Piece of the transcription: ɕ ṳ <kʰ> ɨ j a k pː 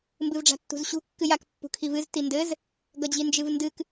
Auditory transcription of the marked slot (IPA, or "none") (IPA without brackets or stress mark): kː